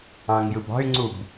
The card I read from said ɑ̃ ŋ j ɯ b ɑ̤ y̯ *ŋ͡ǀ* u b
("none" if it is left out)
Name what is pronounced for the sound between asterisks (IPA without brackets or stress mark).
ŋ͡ǀ